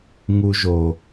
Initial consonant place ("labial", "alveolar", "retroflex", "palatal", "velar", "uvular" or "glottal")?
velar